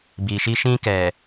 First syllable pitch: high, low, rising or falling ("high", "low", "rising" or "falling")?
low